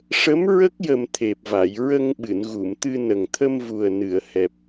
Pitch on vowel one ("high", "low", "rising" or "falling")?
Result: rising